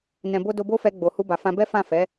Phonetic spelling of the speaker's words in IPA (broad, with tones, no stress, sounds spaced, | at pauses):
n ɛ̃˨ b o˧ d o˧ b o˦ f ɛ˧ ɡ͡b o˨ h u˧ b a˨ f ã˧ b ɛ˦ f ã˦˨ f ɛ˨˦